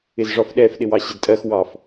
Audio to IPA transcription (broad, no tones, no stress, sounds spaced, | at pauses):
ɪ z ʐ ɒ f ɗ ɛ f ɗ ɪ w ɑ ɕ ɪ d tʼ ɜ x w ɑ f